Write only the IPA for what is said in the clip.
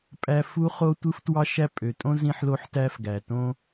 pʼ æ˥ f u˥ χ o˥ tʷ ɯ˥ f t w ɑ˥ ʃ æ˥ pʼ ø˩ tʼ õ˥ z ĩ˥ ħ l o˥ ħ t æ˥ f ɡ æ˩ t õ˥

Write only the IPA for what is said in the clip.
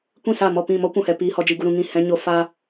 kʷ ĩ˦˨ s a˦˨ m ɔ˦˨ p ĩ˦˨ m ɔ˦ kʷ ũ˨ h ɛ˨ p iː˧ h ɔ˧ d͡ʒ i˧ ɡ u˧ ɾ ũ˧ ŋ ĩ˦˨ h ɛ̃˧ ɲ o˧ f aː˧

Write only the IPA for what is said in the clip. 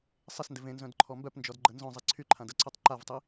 sˤ ɪ s n d ɪ v ẽ n z œ̃ d ǃʰ ɔ m b œ p n d͡ʒ ɔ d ɡ͡ǃ ə n z œ̃ zˤ i ǀʰ y ǃʰ ã d ə ǀ œ tˤ ǃ a v tˤ i

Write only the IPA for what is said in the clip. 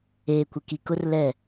eː˨ kʷ ɪ˨ k i˨ k ʊ˦ r l ɛ˦˨

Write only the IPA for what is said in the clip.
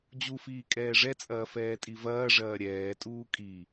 d͡ʑ u f iː kʼ ɛː ʐ ɛ t͡sʼ ɐː f ɛː tʼ i v ɐː ʐ ɐː ɾʲ ɛː tʼ uː kʼ i

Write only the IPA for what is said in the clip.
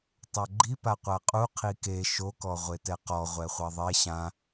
tˤ a ɡ͡ǃ i p a qʷ a qʼ u qʰ i k e ʃ o k ɔ ʁʷ e t ɛ q ɔ ʁʷ ɛ χʷ a ðˤ e ɕ ã

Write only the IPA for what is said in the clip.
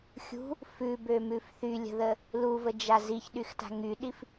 xʲ ṳ | f ʉ b ø m ʉ f θ y lʲ ə̤ ð ə | l u v ə d͡ʒ a z i ç ɗ y x t a̤ ŋ y ɗ i f

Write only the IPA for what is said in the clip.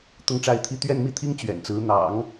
t̪ ʊ˥˧ ŋ ʈ͡ʂ a˥˧ ɪ̯ t̪ʰ i˥˧ t̪ ɥ ɛ˥˧ n m i˥˩ t̪ʰ i˥ ŋ t͡ɕ ɥ ɛ̰˨˩ n t͡s ɹ̩˧˥ n̪ ɑ̰˨˩˦ ŋ

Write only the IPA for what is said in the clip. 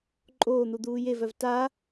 ǃʼ oː n̪ u d̪ uː j e v œ v t a

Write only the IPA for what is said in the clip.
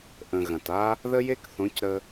ʔ ə̃˨ ɣ ɐ̃˨ t a˦ | ð ə˦ j e˦ k θ õ˨˦ c ɾ ə˧

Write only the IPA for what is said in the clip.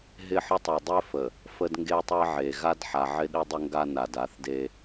ɦ ɪ˦˨ ħ ə˦ tˤ e˨ dˤ ɪ˦ f ə˨ | f ə˦ d ŋ ɡ e˦ tˤ e˦ ʕ e˨ ɣ a˦ d ħ a˨ ʕ ɪ˦ ɗ ɪ˦ dˤ ʊ˦ ŋ ɡ a˦ n a˨ d a˨˦ θ d e˦

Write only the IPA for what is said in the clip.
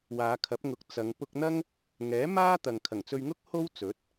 w aː˨˧ kʰ ɐ˨˥ p̚ ŋ ʊ˨˥ k̚ t͡s ɐ˨˧ ŋ p ʊ˧ k̚ n̪ ɐ˥ ŋ | ŋ ɛː˨˥ m aː˥ t̪ ɐ˨ ŋ kʰ ɐ˨˩ ŋ t͡s ɵ˧ ɥ ŋ ʊ˥ k̚ h o˥ w t͡s ɵ˨˥ t̚

